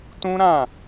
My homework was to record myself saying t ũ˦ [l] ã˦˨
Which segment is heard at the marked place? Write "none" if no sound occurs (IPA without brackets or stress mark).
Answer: ɾ